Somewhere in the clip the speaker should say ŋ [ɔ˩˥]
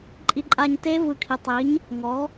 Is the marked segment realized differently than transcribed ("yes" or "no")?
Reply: no